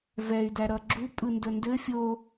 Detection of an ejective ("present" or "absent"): present